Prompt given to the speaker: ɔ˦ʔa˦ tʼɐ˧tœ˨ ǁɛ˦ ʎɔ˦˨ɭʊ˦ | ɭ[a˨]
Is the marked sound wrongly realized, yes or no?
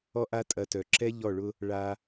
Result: yes